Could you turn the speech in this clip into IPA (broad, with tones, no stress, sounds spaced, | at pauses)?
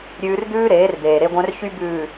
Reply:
ɾʲ ʉː˦ r d̪ ʉː˦ ɾ eː˨˦ r d̪ eː˨ ɾ e˦ ɡʷ œ̃˦ r ç y˦ b ʉː˨